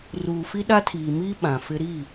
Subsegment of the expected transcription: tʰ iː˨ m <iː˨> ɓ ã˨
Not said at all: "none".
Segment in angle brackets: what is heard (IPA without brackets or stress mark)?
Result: iː˦